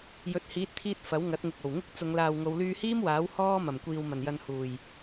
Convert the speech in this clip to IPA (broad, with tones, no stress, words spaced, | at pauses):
jɵ˨˥t̚hiː˨˥t̚t̪ʰiː˧t̚ fɐ˨˥wŋɐ˨˥t̚ŋɪ˨k̚ o˨˩wŋɪ˥k̚ t͡sʊ˨˧ŋlaː˨w ŋo˨˧wlyː˧hiː˥m waː˨˥w hɔː˥ mɐ˨˩mkʷiː˨w mɐ˨˩njɐ˨n huː˨˩j